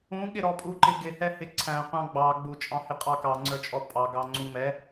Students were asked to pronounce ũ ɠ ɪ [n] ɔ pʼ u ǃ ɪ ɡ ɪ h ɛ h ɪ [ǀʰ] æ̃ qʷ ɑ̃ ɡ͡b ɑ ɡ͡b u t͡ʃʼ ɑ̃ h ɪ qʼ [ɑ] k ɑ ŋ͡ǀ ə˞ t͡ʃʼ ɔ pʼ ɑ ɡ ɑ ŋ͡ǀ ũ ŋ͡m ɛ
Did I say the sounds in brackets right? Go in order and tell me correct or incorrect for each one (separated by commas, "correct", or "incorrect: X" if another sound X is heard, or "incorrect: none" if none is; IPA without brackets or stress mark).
incorrect: ɾ, correct, correct